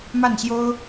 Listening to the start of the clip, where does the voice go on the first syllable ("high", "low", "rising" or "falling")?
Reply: falling